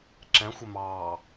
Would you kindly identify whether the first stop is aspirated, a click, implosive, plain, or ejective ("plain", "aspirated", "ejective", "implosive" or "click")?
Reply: click